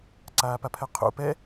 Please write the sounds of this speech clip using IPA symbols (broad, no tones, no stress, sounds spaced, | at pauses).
ǀ aː p a pʰ ɛ qʰ ṵ p ɛ